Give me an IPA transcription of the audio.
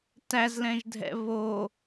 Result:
tæzlɛ̃ʒdʱɛ̰ βo

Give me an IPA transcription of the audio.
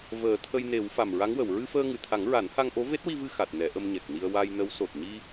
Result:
vəː˨˩˦t̪ʰə˧jne˨˩˦w fa˨˩mɹa˧˥ŋwə˨˩˨w ɹɨ˧fəː˧ŋɨ˨˩t̪ʰa˨˩˦ŋ ɹa˨˩˦nha˧ŋʔo˧˥ ve˦˥t̚wi˧vɨ˧ xa˨˩t̚nɛ˨˩˦ʔə˧m ɲɛ˨˩k̚ni˧ə̯ wa˧jnə˧˥w so˨˩t̚ɲi˧

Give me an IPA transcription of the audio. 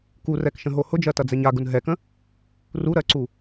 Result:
kurɛkʃə̃ɦo hʊd͡ʒɜtɐd͡zɛɲ aɡʊn ɦɛkə̃ | ruɾɜǀu

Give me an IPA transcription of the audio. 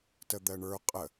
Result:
təd̪ɜɳə˞ qʼə

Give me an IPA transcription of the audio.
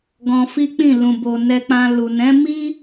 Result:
ɡɔ̃˧fi˦k͡pĩ˦˨ lũ˨bo˨ nɛ˧k͡pã˧ lu˨ nɛ̃˨˦ mi˦

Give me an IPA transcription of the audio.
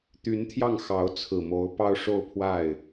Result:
t̪y˧˥nt̪ʰjɑ˥˩ŋ xɑ˧˥ʊ̯t͡sʰɹ̩˨˩mo˧˥ʊ̯pɑ˥ʊ̯ ʂo˥˧ʊ̯pʰwa˥˩ɪ̯

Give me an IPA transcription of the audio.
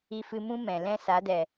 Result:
i˧fɨ˧mũ˦ mɛ̃˨ lɛ̃˦ sa˨˦dɛ˨

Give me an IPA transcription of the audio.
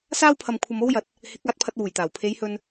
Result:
saː˥wpʰɐ˨m kʷʰɐ˧mo˥wjɐ˨t̚ | hɪ˨˥k̚ aː˧t̚pʰɐ˧t̚wuː˨˩jt̪aː˨˩w pʰe˨˧jhɵ˧n

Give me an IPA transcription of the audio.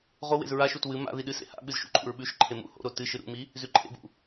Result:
ʁowḛz ɹaʃut wɨ ma̰ði ɗɨsḛ ha̰ɓɨz ʃṵǃʼṵɹɓʉʃǃʰe mṵ ho̰ɾo tɨ ʃɨɾṵmi | zʉǃʼḛbṵ

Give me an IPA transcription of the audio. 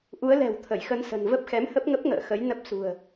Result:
ʔu˨˦ə̯lɛ̤˨˩w t̪ʰə˧˩jxə˧nsə̤˨˩n və˦˥p̚ xɛ˨˦mhə˦˥p̚ŋə˦˥p̚ŋə̰ː˧˨ xə˨˦jnə˦˥p̚sṳ˨˩ə̯

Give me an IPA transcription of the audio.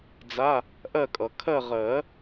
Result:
d͡za˧˥˧ | ʔɜ˦˨kʼʌ˨˩˦ kʰɜ˦˨ʁɜ˨˩˦

